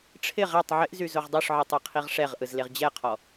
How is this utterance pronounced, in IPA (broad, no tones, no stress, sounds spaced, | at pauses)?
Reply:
ʈ͡ʂʰ ɪ ʁ æ tˤ ʕ ɪ ʔ z y z o ʁ dˤ o ʂ ʕ i tˤ e qʰ i ʁ ʂ ɛ ʁ ʔ ɯ z l e ʁ d͡ʑ ɛ qʰ ɔ